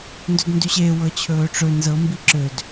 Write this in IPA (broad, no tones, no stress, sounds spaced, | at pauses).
n d ɵ d n d y ɕ e w ɤ t͡ɕʰ ɵː ʈ͡ʂ ɵ n z ɤ m b i ǁ ø d